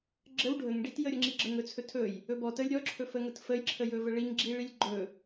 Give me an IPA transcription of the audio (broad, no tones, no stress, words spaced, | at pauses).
ɡ͡ǁəw ɖʱəŋɖit jəɾʲəŋ͡ǁiɡ͡ǁəŋ ɵt͡sʰɵtʰɵj | ɵbɔ təlʲ ɾʲɔǁʰɵfə ŋətfəjǁʰə jɵvəɭiŋɡ͡ǁi ɭilʲɡ͡ǃɵ